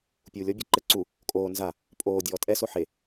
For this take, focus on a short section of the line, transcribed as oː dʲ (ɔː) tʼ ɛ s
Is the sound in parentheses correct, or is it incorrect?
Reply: correct